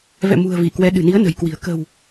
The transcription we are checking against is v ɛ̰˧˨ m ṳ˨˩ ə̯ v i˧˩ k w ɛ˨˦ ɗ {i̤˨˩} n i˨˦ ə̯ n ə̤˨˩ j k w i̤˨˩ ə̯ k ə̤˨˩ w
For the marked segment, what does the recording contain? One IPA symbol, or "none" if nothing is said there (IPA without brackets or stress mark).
ɨ̤˨˩